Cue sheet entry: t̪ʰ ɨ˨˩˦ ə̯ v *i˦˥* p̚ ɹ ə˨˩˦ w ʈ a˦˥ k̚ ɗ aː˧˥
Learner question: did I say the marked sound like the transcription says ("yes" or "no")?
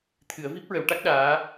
yes